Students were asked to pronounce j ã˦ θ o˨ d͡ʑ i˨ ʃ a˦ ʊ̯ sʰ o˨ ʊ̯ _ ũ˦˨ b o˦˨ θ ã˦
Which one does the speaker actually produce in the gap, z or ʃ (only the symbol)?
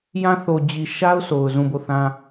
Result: z